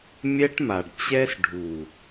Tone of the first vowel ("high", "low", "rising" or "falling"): high